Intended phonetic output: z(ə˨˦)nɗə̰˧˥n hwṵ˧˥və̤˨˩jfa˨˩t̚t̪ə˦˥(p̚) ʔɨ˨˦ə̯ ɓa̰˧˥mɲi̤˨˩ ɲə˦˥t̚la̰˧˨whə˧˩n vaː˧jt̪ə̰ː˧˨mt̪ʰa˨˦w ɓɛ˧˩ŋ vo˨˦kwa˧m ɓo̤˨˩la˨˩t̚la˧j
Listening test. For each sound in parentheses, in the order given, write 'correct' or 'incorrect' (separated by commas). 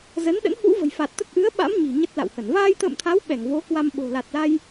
correct, incorrect